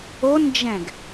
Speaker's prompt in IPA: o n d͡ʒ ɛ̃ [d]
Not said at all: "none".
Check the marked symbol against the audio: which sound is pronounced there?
ɡ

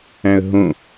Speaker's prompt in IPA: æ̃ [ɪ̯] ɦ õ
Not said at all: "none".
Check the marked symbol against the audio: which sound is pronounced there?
ə̯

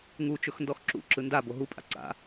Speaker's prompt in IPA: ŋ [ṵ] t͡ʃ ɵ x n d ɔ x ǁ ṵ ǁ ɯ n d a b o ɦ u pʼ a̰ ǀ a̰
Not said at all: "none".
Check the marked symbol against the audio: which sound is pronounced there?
u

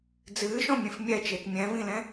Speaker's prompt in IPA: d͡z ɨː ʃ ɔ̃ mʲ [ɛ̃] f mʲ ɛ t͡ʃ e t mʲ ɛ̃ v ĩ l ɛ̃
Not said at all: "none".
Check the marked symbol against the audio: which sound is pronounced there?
ẽ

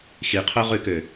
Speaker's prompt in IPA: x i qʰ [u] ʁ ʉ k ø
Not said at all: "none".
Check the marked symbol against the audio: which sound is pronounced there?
o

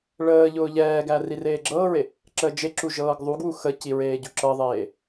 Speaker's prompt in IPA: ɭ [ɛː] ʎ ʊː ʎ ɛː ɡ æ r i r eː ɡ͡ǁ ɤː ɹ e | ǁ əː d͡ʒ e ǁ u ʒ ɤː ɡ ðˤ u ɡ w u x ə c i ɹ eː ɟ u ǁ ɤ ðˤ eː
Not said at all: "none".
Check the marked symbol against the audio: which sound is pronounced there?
əː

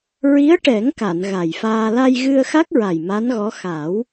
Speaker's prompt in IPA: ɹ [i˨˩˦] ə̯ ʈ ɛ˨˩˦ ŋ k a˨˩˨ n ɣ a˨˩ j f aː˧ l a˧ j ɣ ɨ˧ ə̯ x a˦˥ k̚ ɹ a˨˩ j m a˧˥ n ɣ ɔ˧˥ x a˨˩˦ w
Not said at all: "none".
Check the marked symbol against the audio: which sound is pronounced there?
i˧˥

